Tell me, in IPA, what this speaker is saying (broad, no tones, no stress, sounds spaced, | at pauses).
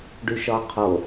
ɖ y ʃ ɒ qʰ o